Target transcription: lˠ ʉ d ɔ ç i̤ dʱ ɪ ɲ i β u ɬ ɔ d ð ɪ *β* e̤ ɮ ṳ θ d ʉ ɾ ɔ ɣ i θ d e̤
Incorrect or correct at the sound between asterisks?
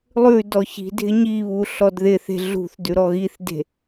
incorrect: θ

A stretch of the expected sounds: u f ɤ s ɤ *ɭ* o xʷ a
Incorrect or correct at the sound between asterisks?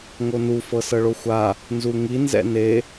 correct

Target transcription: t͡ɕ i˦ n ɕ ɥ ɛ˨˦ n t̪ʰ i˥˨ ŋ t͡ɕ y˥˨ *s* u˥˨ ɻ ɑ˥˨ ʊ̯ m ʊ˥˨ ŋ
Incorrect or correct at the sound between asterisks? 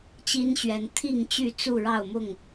incorrect: t͡s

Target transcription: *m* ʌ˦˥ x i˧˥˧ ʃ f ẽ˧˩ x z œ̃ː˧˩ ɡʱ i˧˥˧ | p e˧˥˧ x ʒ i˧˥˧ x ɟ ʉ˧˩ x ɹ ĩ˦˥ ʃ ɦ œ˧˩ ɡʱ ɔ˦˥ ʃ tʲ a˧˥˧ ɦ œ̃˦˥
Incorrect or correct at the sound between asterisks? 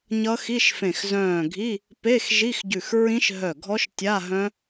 incorrect: ɲ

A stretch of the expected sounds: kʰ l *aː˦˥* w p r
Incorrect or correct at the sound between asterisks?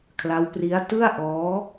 incorrect: a˦˥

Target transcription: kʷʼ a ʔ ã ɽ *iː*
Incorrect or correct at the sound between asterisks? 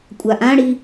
incorrect: i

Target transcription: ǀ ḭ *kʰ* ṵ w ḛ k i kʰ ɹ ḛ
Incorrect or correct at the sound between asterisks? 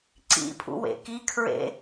incorrect: pʰ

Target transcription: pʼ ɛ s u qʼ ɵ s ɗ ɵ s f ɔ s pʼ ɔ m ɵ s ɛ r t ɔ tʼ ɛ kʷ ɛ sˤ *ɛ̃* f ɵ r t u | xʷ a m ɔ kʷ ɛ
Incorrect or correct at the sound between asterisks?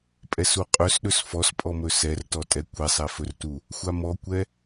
incorrect: ɛ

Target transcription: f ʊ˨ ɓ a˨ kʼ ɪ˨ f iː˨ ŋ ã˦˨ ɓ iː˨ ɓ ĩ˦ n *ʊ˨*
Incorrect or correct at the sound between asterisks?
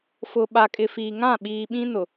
correct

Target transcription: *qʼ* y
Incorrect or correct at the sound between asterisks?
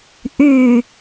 incorrect: ʔ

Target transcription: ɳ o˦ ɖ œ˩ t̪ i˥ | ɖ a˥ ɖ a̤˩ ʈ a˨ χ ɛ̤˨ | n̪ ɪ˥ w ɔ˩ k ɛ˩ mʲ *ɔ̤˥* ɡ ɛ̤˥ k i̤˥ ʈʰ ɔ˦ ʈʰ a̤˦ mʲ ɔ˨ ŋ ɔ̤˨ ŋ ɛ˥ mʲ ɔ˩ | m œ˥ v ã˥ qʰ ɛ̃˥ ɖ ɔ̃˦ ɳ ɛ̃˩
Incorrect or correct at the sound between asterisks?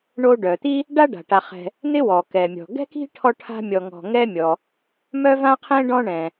incorrect: ɔ̤˩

